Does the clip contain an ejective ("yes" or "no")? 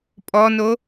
yes